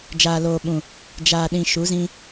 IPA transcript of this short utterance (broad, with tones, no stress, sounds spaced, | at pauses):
d͡ʒ aː˨ l oː˨ ɓ ũ˨ | d͡ʒ aː˨ ɗ ĩ˨ ʃ u˨˦ z ĩ˦